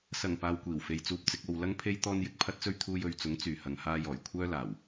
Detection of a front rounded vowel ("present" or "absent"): present